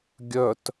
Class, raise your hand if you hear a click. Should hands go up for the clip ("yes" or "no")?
no